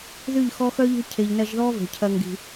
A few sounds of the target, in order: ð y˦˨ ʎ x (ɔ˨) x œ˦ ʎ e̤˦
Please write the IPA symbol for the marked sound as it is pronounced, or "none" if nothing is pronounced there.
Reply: ɔ˦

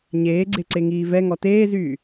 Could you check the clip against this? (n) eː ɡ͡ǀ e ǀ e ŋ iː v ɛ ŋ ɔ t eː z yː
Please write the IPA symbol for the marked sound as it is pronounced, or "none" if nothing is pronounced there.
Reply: ɲ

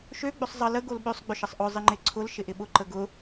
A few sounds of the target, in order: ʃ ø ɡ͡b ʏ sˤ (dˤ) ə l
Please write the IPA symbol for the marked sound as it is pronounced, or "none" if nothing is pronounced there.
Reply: zˤ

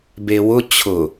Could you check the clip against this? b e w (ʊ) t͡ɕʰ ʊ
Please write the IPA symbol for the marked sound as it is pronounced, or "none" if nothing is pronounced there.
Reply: ʊ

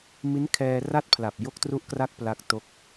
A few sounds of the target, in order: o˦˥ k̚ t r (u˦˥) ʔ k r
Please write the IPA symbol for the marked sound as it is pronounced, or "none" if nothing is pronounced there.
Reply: u˦˥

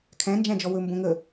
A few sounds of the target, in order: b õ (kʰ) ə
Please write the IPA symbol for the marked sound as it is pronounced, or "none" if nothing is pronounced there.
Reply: ŋ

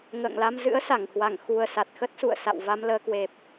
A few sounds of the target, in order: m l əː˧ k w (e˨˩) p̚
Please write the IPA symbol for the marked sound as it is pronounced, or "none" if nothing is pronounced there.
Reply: e˨˩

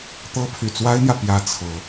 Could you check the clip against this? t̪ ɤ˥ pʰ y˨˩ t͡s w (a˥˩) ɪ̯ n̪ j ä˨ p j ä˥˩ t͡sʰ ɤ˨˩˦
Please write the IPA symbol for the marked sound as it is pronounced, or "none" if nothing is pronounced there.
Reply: a˥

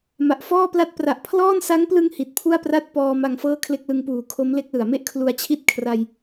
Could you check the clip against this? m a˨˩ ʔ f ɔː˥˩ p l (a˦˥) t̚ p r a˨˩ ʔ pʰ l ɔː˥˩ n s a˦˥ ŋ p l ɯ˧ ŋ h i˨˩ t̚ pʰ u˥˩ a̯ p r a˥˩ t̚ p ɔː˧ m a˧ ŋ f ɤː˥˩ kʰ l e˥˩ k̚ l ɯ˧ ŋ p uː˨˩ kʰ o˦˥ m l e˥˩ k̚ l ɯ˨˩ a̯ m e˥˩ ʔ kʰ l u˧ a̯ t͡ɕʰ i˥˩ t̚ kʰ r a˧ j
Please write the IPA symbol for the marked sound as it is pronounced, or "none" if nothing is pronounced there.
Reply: a˥˩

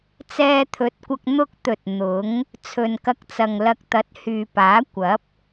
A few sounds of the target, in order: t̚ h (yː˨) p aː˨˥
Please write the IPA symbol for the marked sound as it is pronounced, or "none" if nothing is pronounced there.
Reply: yː˨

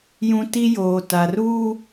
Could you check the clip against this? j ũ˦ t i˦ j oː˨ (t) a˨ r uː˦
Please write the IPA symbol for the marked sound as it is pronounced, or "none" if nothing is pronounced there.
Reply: t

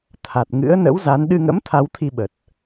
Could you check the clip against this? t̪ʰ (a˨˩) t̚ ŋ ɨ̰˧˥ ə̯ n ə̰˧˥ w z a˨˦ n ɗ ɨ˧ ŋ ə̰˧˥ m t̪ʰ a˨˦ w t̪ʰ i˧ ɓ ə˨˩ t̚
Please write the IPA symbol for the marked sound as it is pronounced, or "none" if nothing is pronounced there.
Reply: a˨˩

